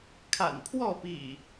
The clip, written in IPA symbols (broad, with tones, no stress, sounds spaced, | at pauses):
kʰ a̰˨˩ n pʰ w ɔ˥˨ p ḭ˨˩